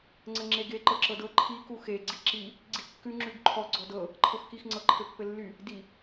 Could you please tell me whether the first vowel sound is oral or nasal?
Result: oral